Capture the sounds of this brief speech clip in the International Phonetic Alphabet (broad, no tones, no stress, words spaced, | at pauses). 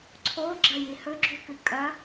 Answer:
ǀʰoɡ͡ǁɐji hɵɡ͡ǁukɨ kʼɐ